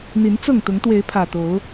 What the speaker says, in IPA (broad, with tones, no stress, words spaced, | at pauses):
n̪i˨˦nt͡sɤ˥˨ŋt̪ʊ˨˦ŋ t̪we˨˦ɪ̯pʰä˨˩t̪o˨˦ʊ̯